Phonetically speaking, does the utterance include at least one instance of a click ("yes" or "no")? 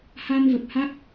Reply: no